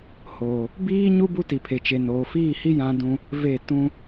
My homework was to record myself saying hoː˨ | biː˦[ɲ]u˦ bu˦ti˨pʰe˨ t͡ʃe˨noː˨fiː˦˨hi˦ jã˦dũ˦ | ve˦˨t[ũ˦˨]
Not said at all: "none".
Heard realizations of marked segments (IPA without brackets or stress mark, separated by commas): ɲ, ũ˦